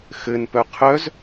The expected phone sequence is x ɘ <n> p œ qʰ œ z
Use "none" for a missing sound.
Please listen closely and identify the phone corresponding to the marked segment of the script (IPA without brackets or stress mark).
n